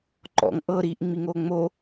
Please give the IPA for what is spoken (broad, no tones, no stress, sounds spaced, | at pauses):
ǃ ɔ̰ ŋ ʔ ɤ ɾ iː ʔ ŋ͡m i ŋ oː ŋ͡m o